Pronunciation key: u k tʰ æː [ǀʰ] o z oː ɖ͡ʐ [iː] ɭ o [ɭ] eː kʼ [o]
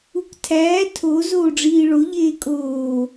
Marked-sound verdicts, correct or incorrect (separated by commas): incorrect, correct, incorrect, incorrect